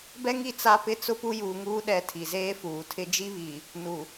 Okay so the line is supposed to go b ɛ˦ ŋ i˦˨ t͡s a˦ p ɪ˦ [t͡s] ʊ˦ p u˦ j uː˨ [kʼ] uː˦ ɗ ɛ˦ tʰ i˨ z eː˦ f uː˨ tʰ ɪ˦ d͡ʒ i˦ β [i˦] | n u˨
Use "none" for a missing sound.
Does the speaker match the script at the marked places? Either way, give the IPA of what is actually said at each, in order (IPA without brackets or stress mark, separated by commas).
t͡s, ŋ, i˨